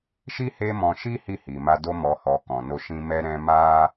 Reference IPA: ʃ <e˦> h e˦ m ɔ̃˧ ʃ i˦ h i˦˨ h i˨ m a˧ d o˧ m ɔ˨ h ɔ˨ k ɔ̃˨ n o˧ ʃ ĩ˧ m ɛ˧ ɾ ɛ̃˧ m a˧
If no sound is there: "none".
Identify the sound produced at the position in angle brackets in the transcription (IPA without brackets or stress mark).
i˦